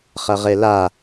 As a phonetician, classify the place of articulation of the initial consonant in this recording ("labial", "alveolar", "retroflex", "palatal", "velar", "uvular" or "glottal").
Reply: uvular